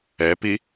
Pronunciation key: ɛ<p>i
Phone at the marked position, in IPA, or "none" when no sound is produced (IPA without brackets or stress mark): p